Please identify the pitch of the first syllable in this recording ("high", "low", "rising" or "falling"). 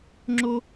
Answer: high